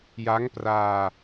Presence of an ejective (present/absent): absent